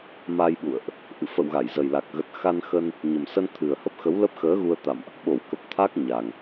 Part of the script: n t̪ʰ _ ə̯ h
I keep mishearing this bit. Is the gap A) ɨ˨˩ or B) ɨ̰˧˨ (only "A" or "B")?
A